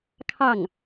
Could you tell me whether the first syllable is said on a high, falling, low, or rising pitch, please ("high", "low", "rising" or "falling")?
falling